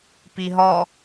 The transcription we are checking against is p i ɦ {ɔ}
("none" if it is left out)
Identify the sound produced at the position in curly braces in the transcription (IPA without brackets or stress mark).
ɔ